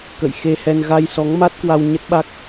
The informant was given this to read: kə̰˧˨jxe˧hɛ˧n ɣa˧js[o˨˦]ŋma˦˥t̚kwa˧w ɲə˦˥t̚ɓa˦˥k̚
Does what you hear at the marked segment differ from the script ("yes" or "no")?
yes